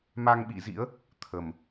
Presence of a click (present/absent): absent